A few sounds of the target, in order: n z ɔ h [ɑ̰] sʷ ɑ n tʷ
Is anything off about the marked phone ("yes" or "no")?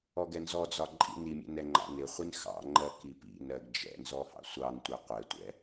no